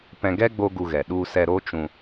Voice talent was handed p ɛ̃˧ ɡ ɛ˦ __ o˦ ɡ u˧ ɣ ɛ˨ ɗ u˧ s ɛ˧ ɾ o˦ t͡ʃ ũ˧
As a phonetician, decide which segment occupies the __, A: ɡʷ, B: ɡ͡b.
B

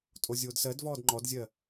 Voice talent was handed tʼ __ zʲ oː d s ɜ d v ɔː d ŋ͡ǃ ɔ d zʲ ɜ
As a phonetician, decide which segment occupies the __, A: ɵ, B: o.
B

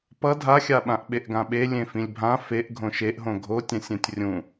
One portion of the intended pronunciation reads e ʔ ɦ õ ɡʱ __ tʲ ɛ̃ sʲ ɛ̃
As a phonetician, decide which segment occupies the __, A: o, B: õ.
A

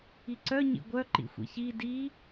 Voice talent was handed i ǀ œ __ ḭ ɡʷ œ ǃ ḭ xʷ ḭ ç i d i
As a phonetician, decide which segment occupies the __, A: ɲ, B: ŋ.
A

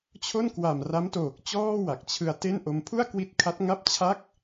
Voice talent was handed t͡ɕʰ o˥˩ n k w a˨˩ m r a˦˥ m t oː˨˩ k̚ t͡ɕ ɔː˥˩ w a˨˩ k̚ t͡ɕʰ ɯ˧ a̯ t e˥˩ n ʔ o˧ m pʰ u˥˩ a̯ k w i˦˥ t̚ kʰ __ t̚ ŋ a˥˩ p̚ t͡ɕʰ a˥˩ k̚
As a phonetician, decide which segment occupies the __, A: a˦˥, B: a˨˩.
A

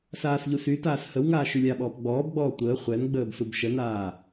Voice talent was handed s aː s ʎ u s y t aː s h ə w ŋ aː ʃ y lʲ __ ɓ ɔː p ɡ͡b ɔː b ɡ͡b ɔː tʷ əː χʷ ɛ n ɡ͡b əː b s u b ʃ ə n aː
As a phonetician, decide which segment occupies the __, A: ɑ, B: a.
B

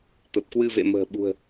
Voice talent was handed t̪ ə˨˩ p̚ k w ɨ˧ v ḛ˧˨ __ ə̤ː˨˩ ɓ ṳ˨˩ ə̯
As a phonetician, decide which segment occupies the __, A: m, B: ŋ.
A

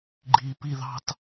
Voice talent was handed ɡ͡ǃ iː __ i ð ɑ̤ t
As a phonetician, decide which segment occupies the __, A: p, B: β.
A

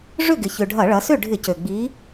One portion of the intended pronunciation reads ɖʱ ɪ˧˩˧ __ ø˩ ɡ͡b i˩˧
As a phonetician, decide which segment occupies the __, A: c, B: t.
A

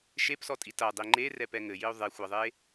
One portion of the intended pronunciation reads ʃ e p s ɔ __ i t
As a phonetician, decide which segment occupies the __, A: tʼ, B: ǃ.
A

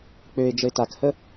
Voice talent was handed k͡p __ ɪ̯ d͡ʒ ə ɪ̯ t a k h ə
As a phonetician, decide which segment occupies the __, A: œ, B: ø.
B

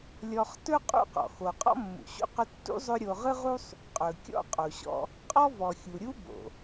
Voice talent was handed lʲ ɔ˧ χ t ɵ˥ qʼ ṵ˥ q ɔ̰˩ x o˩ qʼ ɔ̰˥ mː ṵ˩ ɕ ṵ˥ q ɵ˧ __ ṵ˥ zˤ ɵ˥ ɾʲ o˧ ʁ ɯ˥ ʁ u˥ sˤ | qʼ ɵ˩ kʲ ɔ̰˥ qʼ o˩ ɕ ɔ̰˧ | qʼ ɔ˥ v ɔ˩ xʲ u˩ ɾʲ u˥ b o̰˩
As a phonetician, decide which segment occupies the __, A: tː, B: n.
A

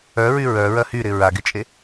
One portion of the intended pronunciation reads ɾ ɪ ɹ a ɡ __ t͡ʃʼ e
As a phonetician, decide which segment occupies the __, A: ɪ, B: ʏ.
A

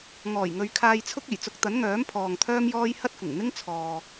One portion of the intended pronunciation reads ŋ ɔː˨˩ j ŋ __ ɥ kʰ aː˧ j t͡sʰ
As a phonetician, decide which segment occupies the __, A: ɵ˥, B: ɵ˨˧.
B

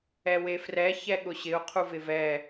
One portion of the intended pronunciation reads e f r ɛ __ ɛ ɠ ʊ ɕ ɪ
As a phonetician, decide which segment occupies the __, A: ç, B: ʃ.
A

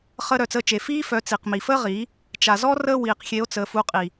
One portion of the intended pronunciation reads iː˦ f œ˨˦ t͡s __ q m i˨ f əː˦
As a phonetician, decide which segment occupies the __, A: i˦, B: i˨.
B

